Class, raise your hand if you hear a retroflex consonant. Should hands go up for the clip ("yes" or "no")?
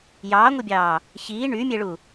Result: yes